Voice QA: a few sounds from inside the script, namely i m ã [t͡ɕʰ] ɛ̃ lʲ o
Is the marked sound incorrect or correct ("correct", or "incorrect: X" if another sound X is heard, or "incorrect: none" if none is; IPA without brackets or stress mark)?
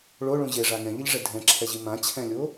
correct